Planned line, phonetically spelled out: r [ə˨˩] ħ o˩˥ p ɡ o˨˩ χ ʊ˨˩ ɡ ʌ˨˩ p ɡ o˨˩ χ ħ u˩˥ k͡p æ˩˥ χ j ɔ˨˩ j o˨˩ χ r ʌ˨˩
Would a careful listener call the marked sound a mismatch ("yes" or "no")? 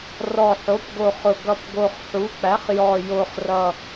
yes